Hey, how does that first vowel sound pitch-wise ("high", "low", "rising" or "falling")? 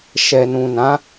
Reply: low